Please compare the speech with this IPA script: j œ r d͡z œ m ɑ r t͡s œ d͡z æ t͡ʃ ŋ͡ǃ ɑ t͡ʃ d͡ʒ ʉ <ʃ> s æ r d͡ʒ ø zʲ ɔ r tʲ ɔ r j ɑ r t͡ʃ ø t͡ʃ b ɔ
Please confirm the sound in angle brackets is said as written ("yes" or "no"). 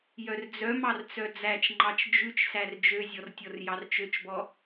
no